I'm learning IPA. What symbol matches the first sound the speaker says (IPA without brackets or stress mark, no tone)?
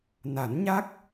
n